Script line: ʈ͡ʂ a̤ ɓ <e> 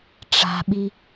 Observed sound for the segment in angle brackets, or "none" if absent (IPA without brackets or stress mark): i